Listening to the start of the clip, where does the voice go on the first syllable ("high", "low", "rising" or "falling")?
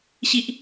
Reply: high